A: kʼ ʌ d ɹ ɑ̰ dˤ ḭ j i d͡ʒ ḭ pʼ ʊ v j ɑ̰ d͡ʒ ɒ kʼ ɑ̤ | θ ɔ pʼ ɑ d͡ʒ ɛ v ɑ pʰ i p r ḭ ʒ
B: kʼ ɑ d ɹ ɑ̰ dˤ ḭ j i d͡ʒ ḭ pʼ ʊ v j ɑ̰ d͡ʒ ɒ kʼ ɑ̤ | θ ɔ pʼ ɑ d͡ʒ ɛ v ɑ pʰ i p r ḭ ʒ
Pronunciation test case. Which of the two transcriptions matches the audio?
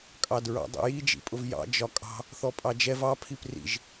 B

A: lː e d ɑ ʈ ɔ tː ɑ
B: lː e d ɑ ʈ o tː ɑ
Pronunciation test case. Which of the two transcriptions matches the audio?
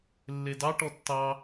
A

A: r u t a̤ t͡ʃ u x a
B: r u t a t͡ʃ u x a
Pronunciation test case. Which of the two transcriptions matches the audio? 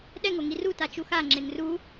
B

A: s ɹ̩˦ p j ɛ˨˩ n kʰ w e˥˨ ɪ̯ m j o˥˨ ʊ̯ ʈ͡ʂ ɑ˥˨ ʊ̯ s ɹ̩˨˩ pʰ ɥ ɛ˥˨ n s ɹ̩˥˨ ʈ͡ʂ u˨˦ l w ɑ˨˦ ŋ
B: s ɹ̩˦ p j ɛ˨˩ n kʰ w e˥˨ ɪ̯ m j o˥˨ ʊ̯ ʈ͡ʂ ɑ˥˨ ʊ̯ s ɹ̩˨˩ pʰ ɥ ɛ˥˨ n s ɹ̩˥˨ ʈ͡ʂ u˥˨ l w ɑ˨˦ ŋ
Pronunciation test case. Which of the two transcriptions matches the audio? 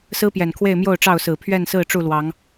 B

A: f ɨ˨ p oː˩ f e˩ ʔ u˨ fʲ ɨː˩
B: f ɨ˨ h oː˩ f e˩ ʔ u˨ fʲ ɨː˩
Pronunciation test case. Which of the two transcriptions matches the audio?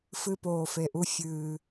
A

